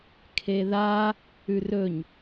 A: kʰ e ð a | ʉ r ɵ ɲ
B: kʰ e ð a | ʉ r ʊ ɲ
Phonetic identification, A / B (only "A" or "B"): A